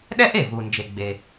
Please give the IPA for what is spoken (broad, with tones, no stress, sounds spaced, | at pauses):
ɗ ɛ˥ ʔ e˩ v u˩ n d͡ʒ e˩ ɡ͡b e˩